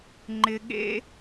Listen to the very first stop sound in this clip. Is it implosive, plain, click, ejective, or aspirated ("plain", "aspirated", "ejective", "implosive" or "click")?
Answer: click